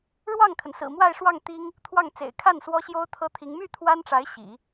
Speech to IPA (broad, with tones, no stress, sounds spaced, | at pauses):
ɻ w ɑ˥˩ ŋ kʰ ə˩ n s ɹ̩˨˩ m w a˥˧ ɪ̯ ʂ w ɑ˥˩ ŋ t̪ i˥ ŋ | t̪ʰ w ɑ˥˩ ŋ t͡s ḛ˨˩ ɪ̯ kʰ a˥˩ n s w ɔ˥ ɕ j o˥ ʊ̯ t̪ʰ ɤ˥ t̪ʰ i˧˥ ŋ m y˥˩ t̪ʰ w a˥ n ʈ͡ʂ a˧˥ ɪ̯ ɕ ḭ˨˩˦